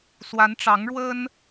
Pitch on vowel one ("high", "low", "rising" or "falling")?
rising